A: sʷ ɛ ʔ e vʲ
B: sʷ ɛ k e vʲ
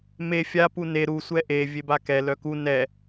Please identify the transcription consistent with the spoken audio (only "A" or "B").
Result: A